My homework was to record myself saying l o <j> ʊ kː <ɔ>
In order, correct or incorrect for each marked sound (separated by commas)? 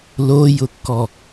correct, correct